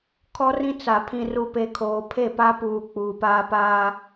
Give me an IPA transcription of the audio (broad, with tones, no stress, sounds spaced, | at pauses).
kʰ ɔ˦ r ĩ˦ t͡s a˨ pʰ ĩ˨ r u˨ p e˨ kʰ oː˨ pʰ e˦˨ p a˦ p uː˨ k͡p uː˨ p aː˦ p aː˦